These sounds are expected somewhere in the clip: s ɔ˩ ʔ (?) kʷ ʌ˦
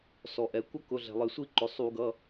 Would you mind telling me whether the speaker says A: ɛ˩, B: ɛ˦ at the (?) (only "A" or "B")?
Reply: A